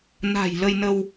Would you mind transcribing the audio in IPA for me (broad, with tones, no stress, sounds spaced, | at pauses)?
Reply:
n a̤˨˩ j l ə˧ j n ə˧ w